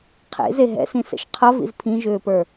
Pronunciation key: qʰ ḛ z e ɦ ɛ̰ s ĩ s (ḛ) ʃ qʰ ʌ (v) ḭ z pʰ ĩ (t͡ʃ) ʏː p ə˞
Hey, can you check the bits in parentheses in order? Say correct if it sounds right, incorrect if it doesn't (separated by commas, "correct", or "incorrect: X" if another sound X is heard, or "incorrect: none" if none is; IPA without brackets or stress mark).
incorrect: ɛ̰, correct, incorrect: ʒ